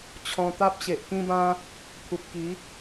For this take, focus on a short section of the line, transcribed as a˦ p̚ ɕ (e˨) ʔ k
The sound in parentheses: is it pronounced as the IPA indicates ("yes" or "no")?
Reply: yes